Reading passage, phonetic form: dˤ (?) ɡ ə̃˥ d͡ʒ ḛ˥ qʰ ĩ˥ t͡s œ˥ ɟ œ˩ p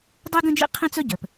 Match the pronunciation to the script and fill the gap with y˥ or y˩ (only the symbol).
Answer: y˥